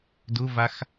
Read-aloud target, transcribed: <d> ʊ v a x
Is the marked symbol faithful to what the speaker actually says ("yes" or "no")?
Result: yes